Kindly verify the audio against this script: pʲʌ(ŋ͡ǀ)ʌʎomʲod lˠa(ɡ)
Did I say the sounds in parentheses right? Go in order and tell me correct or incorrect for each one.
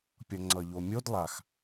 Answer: correct, incorrect: x

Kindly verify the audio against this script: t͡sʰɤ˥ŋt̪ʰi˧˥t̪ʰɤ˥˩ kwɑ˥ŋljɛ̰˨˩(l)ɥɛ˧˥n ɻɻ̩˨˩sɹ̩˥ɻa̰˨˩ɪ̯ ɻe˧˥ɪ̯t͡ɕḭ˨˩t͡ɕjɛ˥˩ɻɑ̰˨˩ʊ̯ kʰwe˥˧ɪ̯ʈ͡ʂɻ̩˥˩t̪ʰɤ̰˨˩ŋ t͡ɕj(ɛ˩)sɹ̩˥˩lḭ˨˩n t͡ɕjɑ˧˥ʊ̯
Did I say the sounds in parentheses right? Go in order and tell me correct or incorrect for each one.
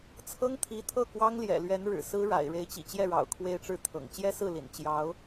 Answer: correct, incorrect: ɛ˥

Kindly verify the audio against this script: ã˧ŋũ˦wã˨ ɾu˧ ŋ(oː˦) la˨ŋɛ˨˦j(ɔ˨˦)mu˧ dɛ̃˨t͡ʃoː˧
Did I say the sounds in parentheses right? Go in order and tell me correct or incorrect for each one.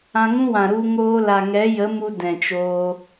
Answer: correct, incorrect: ə˨˦

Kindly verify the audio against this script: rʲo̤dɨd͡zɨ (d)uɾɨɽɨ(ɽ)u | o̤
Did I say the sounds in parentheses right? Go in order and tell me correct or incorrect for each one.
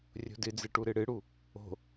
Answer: incorrect: ʈ, correct

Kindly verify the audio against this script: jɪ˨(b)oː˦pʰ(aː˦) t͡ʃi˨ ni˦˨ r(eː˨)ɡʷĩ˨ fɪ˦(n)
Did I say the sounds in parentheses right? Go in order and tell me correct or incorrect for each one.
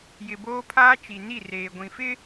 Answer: correct, correct, correct, incorrect: none

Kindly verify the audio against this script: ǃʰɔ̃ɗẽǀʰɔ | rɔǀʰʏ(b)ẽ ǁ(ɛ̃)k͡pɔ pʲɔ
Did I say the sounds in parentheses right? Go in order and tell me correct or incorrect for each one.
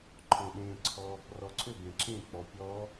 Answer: correct, incorrect: ẽ

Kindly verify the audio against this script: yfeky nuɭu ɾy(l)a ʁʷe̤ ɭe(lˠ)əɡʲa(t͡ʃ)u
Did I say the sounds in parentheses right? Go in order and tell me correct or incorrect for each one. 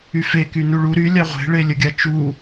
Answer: incorrect: lʲ, incorrect: lʲ, correct

